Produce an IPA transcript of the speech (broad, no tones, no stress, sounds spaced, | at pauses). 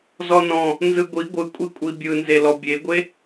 z ɔ n ɔ̃ | n z ɯ ɡʷ i ɡʷ ɯ kʷʼ i kʷʼ i bʲ ɯ n z e l ɔ bʲ e ɡʷ e